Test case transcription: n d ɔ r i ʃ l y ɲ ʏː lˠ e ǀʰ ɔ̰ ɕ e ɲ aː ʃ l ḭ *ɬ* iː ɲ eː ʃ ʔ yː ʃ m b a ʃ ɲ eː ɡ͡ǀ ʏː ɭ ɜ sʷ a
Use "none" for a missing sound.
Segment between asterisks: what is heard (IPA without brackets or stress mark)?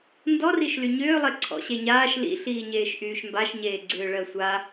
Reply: ɬ